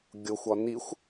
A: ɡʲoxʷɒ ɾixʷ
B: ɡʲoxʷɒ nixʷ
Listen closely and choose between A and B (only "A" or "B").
B